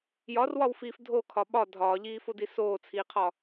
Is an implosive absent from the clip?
no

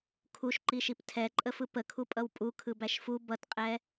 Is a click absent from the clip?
no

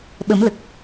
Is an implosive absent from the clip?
no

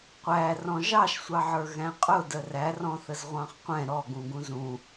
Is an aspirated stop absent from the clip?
yes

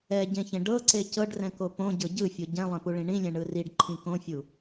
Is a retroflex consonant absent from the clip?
no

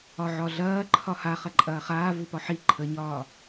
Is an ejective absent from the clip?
no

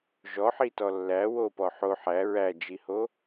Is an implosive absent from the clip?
yes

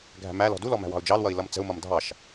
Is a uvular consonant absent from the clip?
yes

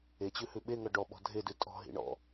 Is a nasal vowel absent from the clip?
yes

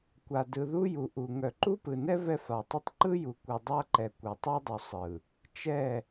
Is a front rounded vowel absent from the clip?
no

